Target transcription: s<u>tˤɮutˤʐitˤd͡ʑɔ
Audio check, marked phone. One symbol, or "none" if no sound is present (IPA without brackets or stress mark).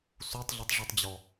u